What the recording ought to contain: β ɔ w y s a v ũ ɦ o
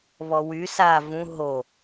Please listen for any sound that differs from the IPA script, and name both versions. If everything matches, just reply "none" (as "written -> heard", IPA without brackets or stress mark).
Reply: none